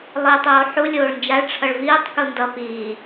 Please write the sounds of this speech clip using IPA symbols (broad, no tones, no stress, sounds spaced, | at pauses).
lˠ iː tˤ oː ħ u lʲ oː ɭ n d͡ʒ a ɭ ʈ͡ʂʰ ʌ ɭ v iː tˤ k u n d ʌ p iː